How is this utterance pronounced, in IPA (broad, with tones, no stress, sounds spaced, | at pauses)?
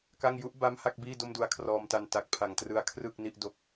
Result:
k a˥˩ ŋ j u˦˥ ʔ b a˦˥ m h a˥˩ k̚ b iː˥˩ d o˥˩ m d u˧ a̯ kʰ r ɔː˧ m t a˧ n t a˨˩ k̚ pʰ a˨˩ ŋ t r ɯ˧ a̯ kʰ r ɯ˥˩ k̚ n i˥˩ ʔ d o˥˩ k̚